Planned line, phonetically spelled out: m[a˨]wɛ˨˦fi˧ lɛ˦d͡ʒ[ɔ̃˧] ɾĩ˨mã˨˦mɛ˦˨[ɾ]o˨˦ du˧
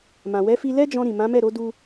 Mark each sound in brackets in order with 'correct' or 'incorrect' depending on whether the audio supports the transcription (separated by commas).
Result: incorrect, correct, correct